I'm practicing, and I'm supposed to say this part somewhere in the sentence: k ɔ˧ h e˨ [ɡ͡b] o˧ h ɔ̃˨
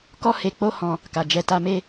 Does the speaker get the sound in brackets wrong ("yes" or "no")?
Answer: yes